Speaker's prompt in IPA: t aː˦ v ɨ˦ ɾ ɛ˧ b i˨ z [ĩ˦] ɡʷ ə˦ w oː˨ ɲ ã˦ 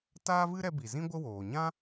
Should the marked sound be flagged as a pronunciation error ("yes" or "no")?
no